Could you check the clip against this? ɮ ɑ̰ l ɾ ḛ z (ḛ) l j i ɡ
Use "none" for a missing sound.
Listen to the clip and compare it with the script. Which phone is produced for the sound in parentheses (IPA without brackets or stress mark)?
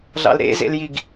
ḛ